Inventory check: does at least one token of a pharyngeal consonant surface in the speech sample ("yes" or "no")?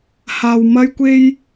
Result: no